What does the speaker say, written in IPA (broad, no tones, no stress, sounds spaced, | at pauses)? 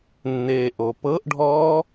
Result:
nː eː ʔ o p ɤ ʔ ɖʱ ɔː